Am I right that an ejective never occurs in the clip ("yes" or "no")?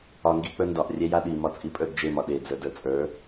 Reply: no